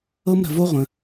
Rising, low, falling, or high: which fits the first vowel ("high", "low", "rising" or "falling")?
high